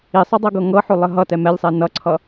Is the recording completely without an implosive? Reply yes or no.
yes